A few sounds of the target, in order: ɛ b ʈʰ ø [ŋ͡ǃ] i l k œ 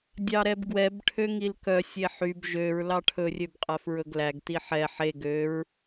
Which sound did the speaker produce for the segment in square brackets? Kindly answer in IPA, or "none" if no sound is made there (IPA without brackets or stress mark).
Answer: ŋ